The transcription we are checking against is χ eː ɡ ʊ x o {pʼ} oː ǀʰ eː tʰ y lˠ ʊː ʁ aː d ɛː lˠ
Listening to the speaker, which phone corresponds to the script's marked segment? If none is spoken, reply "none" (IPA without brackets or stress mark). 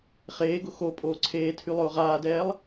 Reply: pʼ